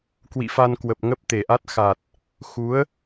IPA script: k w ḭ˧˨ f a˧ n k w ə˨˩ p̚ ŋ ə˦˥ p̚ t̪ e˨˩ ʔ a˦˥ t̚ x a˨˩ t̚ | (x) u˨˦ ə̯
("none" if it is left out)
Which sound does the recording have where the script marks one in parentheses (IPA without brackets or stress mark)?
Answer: x